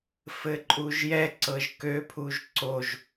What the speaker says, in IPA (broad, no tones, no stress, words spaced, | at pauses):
fɘǃʼuʒjɛ ǀɤʒkø pʰuʒǀoʒ